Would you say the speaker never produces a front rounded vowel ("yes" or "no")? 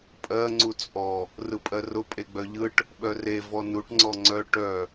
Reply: no